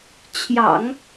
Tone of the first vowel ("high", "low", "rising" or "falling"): low